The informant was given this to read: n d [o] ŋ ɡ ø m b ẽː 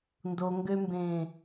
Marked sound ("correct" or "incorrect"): correct